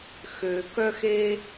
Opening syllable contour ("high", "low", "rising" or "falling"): low